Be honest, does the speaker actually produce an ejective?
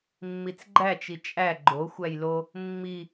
yes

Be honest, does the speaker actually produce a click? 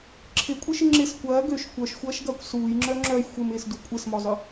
yes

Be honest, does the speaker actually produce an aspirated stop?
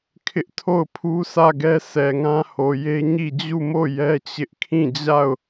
yes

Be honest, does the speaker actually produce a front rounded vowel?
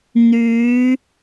yes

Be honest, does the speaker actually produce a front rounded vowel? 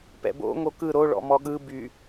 yes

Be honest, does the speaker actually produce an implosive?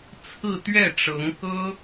no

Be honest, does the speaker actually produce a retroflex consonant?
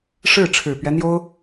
yes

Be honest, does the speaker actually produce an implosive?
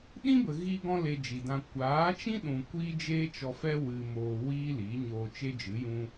yes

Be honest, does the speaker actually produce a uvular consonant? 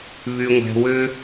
no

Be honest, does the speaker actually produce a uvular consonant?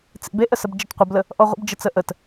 yes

